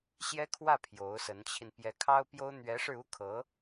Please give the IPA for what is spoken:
ɕ j ɛ˥ kʰ w ä˥˩ pʰ j o˧˥ ʊ̯ s ə˧˥ n t͡ɕʰ i˧ n p j ɛ˧˥ kʰ ɑ˥ ʊ̯ p j o˥ ʊ̯ n̪ ɥ ɛ˧˥ ʂ ɻ̩˧ u˥ kʰ ɤ˧˥

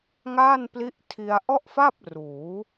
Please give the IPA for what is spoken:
ŋ aː˥˩ n p l i˦˥ ʔ tʰ i˧ a̯ ʔ ɔ˥˩ ʔ f a˥˩ p̚ r uː˩˦

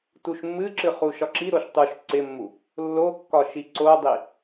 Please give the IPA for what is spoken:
t u ʃ mː ɨ ǁ ɨ χ u ʃ ɒ ǁ i ɾ o ʃ tˤ u ʃ ǀ ɪ mː u | lː o kː ɒ ʃ i ǀ o dˤ i

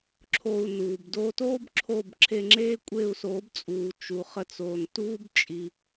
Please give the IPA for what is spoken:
ǁʰ o˧ u̯ n uː˩ b d oː˧ t oː˥ b ǁʰ oː˥˩ b ǁʰ e˧ ŋ͡ǁ eː˥ kʷʼ e˥˩ u̯ s oː˩˥ b t͡sʼ uː˩ t͡ʃ u˩ χ ə˧ t͡s oː˩ n t uː˥ b t͡ʃʼ i˩

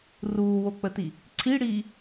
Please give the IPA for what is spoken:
r uː w o k͡p ə t i | ǀʰ i ɽ iː

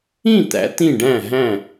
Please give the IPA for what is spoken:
ĩ˥˨ t̪ æ̰˩˧ t̪ ĩ˥˨ ɖ æ̃˥˨ ɦ æ̃˥˨

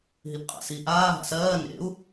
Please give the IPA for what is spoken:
ɦ i p qʼ a̰ s i ʔ aː ɦ a̰ s ɜː n ḛ u̯

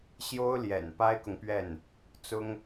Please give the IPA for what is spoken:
ɕ j o˥ ʊ̯ l j ɛ̰˨˩ n p a˥ ɪ̯ k ʊ˨ ŋ p ɥ ɛ˥˩ n | t͡s ʊ˥ ŋ

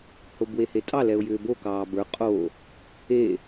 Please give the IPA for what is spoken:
h o b w e h e tʼ ɑ l ɛ ʊ̯ j ʏː b o k ɑː b ə˞ qʼ o | e

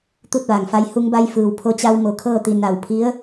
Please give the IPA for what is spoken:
t̪ u˥˨ t̚ ʋ aː˩ ŋ f a˧ j h u˧ ŋ b a˧ j f ɯː˩ w pʰ o˧ t͡ɕ a˧ w m o˩˧ kʰ ɤː˥˨ t̪ i˧˩ n a˧˩ w pʰ i˧˥ ə̯

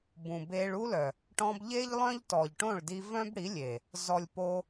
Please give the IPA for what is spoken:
b ũ˨ b e˧ ɭ u˦ l œ˨ | ʈ ɔ̃˧ b ʎ e˦ ʎ lˠ œ̃˦ ʎ t ɔ˨ ʎ ʈ õ˦˨ ɭ d i˧ v œ̃˦ b ɽ i˨˦ lʲ e˨ | z ɔ˨ lʲ p o˧

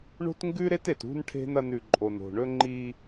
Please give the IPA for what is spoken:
ɳ o̤˦ t ŋ ɡ ʉ˦ ɾ e˦ t e˨ t ṳ˦ n ʈʰ e̤˦ n ɐ˦ n ʉ˨ ǃʼ o˨ n o̤˨ ɳ ɵ˦ ŋ͡ǃ i˦

